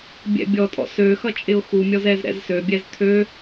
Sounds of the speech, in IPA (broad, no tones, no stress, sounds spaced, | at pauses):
bʲ ɛ̰ bʲ ɔ tʼ ɔ̰ s ø x ʌ t͡ʃʼ ɪ ʊ̯ x u mʲ ɔ z ɛ z ɾ ɛ̰ z s ø bʲ ɛ z t̪ʰ ø